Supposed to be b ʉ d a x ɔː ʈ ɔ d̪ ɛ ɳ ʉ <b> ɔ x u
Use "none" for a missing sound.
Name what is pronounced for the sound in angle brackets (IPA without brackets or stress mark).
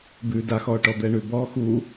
b